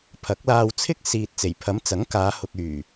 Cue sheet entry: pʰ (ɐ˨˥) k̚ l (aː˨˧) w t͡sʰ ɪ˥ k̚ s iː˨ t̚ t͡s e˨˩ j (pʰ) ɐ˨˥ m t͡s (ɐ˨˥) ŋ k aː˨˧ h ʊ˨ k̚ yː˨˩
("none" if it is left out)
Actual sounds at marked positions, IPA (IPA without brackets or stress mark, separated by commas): ɐ˨˥, aː˧, pʰ, ɐ˨˥